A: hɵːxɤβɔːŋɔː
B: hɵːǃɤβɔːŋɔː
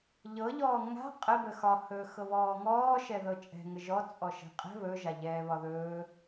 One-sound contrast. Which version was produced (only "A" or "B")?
A